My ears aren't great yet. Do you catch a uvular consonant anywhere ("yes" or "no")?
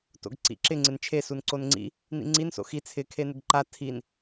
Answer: no